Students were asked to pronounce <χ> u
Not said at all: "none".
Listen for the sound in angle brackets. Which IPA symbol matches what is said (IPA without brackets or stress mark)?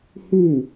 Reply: h